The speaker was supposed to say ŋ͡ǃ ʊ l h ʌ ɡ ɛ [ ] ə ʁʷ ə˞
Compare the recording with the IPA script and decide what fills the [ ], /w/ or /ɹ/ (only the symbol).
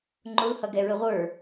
ɹ